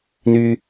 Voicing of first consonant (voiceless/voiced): voiced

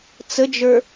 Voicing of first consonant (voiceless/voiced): voiceless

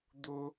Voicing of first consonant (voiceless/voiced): voiced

